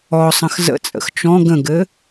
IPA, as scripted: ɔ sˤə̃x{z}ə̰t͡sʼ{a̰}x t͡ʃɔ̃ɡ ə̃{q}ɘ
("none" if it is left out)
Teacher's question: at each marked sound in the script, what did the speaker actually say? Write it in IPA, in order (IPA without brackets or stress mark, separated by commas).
z, ə̰, ɡ